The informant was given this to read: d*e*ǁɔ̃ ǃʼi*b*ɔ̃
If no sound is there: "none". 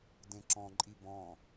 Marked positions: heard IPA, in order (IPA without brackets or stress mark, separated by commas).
ẽ, b